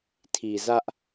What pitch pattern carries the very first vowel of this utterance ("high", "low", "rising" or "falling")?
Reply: low